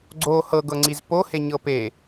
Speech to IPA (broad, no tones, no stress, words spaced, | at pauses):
ɡ͡ǀo hɤɡɤŋ͡ǀiz poheɲɤ pe